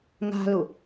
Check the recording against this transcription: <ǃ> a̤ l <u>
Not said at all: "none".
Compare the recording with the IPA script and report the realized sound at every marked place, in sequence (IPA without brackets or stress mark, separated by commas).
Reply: ŋ, u